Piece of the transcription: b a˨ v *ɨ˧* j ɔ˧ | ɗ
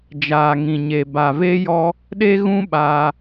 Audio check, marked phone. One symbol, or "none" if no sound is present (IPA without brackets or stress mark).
e˧